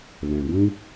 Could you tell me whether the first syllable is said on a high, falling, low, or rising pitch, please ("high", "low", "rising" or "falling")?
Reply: low